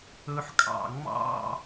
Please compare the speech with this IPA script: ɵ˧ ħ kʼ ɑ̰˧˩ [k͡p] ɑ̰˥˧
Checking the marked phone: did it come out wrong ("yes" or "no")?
yes